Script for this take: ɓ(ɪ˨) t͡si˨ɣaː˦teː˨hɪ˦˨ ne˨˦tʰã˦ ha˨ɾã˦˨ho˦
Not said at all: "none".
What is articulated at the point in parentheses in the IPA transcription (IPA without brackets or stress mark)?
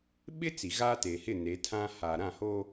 ɪ˦